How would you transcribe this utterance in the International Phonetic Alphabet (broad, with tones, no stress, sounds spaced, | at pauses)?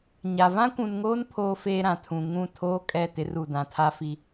ɲ a˨ v ã˦ kʷ ũ˨ n ŋ oː˦ n pʰ oː˦ f eː˦ ɾ ã˨ tʰ ũ˨ ŋ ũ˦˨ tʰ oː˦ kʼ ɛ˦˨ t ɪ˦ r u˦˨ d ã˨ tʰ a˦ f i˦